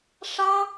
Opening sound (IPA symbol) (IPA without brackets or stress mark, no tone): ʂ